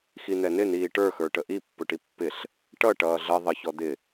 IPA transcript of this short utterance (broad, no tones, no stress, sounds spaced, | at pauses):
x i n̪ ɛ n ɪ n iː ʈ ə˞ x ə˞ ʈ ə ʔ i pː ʊ ʈ i pː ɪ ɬ | ʈ ʌ ʈ ʌː ɮ ʌ ðˤ ə ç ɔ d̪ ɪ